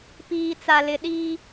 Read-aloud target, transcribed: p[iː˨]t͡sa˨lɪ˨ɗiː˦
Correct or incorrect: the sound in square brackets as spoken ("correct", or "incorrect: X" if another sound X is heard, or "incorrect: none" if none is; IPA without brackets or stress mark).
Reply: correct